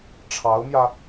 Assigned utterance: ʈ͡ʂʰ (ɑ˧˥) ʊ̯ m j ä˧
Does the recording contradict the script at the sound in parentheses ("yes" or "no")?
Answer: no